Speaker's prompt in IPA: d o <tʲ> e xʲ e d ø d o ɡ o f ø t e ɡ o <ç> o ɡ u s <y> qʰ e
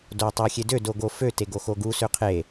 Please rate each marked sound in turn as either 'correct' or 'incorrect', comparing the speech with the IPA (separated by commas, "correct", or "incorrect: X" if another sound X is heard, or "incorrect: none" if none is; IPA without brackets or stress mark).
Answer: incorrect: tˤ, incorrect: x, incorrect: ø